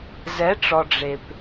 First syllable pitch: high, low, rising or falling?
rising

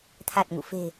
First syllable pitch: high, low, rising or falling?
low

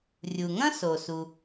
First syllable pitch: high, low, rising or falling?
low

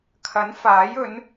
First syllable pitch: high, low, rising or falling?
rising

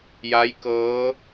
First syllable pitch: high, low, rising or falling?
rising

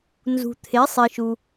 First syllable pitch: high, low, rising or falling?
low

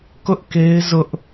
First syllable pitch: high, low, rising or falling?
high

